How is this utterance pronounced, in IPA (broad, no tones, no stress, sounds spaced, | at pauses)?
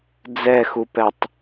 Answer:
d͡z ɛ x u p ɛ tˤ